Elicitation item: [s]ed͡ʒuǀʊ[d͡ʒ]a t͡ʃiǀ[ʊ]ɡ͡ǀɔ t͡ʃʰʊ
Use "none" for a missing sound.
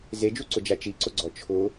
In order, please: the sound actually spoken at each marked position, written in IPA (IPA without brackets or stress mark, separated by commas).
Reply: z, d͡ʒ, ʊ